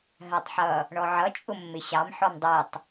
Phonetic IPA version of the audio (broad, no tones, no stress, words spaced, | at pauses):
ɦɜtˤħʌ | ɳɔʕʌ t͡ʃʼʊmːɪɕɑm ħɔmdˤitˤ